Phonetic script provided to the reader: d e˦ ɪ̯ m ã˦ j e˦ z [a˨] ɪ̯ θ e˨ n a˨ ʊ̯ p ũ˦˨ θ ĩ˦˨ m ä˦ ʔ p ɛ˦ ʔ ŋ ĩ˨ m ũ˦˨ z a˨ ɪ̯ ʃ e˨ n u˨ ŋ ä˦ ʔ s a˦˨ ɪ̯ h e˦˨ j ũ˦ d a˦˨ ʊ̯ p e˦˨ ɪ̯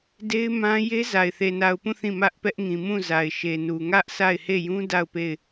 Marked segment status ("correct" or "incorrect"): correct